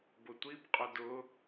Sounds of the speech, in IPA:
bʊtʷib qʼʊdʊ

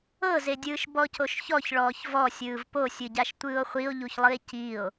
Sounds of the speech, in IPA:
ɤzedʲɯːʃ bɔcoʃçɔç ɭɔːçvɔsʲɯːv posʲɯɟaʃ tʷɯːo̯χʷio̯ʎuçlˠɯe̯ cio̯

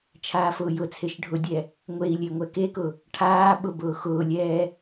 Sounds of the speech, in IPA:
t͡ʃʰaːfʊːjʊt͡sʰeʃ ɖʱʊdʲɛ | ŋʷei̯ lʲeŋʷɛkekʊ | ʈʰaːɓʊ bʊːxʊːlʲɛː

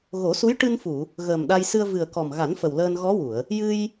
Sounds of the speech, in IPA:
ɣo˨˩˦su˧˥j ʈɨ˧nfu˨˩˨ | ɣəː˨˩m ɗa˧jsɨ˧ə̯ vɨ˨˩ə̯kɔ˨˩mɣa˨˩˦n fə˨˩wləː˧nɣɔ˧˥ wu˨˩˨ə̯ | jɨ˧j

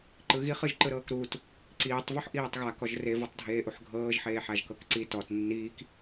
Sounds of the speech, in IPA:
ǃɯɣiχ ɯʒǃɯɾɤːkɾuːt | ǀiːtˤ vuħʔiːtˤɣa kɔʒre vɤtˤdʱeːʔuħɡʱɤːʒ ħeːħaʒkɤkǀi tɔt nːiːk

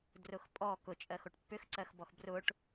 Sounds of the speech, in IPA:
drʊxpʼɔ kʊt͡ʃʼɜxoʈ pːʏxǀɜxbɔx brʊʈ

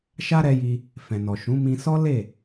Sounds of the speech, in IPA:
ʃa˦ɾɛ˧ji˧ | fɛ̃˨nɔ˨ ʃũ˨˦ mĩ˧sɔ˦le˦˨

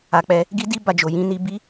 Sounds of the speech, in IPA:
a˨k͡pɛ˧ | ɡi˦di˦ ba˧d͡ʒo˨ jĩ˨˦ni˧bi˦

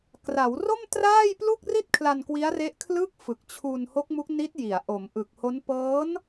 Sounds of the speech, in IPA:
kra˩˦wro˥˩m traː˥˩jplu˥˩k̚ri˥˩t̚ kʰla˧nkwi˦˥a̯re˦˥ʔ kʰlɯ˦˥k̚ fɯ˨˩k̚t͡ɕʰu˧n ho˦˥k̚mu˦˥k̚ni˦˥t̚ji˩˦a̯ ʔo˩˦m ʔɯ˨˩k̚ho˦˥n pɤː˦˥n

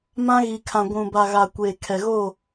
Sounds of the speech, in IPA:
mã˦ɣi˨kʰã˨ ɡʷũ˨ba˨ɣa˨ kʷeː˨kʰɛ˨ɣo˦˨

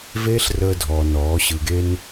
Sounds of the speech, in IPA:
veː˦ɬrəː˧dʱɔː˨ nɔː˨˦ɕɯ˧ɡe˦n

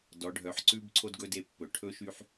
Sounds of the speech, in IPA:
dɔ˩˧ɖʱœ˩˧ħǀʉ˦b ǀʰo˦dɡɵ˦de˦˨pːɵ˩˧ ʈʰɵ˦ʃy˦ħ

